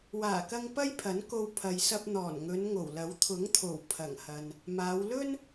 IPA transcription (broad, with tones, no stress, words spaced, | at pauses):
waː˨˩kɐ˧ŋ pɐ˥jpʰɐ˨˥nko˧w pʰɐ˨jsɐ˧p̚ n̪ɔː˨˩nŋɵ˨˧n ŋo˨˩wlɐ˨˥w t̪ʰʊ˨˥ŋt̪ʰo˨˩w pʰɐ˨˩ŋhɐ˨n | maː˨˧w lɵ˥n